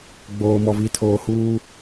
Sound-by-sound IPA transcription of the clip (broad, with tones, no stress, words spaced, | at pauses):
ɡ͡boː˨mɔ˨vi˨ tʰoː˨huː˦